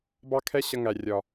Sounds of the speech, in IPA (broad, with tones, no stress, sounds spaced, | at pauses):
b ɑ˦ kʰ ɛ˦ ɕ ʌ˧ ŋ æ˨ rʲ ɒ˨